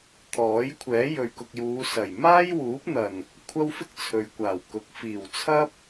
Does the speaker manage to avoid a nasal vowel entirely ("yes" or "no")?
yes